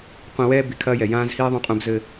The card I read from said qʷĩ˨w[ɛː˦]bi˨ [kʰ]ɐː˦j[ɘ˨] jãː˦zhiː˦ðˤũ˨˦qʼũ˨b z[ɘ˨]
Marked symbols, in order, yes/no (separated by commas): yes, yes, no, yes